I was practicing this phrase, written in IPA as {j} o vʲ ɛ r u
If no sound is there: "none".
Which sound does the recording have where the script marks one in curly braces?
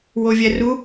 w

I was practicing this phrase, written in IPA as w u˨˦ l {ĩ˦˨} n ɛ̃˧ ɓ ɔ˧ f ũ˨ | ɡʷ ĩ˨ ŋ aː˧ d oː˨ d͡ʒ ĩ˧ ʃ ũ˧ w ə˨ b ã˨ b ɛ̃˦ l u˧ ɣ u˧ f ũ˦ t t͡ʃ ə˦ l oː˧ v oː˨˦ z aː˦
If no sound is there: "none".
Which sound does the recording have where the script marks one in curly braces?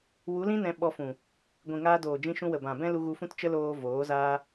ĩ˦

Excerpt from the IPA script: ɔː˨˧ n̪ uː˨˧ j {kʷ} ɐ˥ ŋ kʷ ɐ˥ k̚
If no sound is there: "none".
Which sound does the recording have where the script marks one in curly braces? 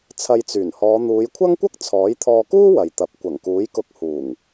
kʷʰ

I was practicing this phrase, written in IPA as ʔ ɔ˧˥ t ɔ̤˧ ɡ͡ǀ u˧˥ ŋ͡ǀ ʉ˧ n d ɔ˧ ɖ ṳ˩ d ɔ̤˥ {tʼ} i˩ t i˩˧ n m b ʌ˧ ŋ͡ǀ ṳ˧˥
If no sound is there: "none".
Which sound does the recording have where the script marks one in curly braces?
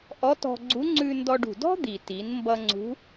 d̪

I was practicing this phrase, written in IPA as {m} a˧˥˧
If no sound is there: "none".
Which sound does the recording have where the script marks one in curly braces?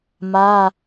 m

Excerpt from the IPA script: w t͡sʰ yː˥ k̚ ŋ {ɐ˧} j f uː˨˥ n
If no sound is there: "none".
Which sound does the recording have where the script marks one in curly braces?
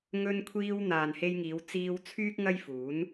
ɐ˥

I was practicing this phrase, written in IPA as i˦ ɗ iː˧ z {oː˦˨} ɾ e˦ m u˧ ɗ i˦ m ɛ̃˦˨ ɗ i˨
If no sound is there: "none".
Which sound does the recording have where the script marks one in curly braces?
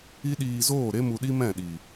oː˦˨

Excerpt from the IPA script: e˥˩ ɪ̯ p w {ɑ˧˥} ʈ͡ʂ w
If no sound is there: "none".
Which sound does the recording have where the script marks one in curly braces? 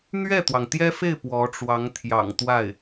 ɔ˧˥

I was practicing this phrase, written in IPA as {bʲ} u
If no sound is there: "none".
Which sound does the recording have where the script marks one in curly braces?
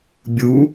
bʲ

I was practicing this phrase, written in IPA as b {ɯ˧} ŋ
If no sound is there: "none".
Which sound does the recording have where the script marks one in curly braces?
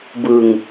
ɯ˧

